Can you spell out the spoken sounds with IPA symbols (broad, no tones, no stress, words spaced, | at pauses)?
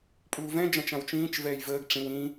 pʼuːvɛ̃ d͡ʒãt͡ʃãwt͡ʃĩːt͡ʃ vɛːjvəːɡ ʈ͡ʂĩw ĩ